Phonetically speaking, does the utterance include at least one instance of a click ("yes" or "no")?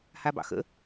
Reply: no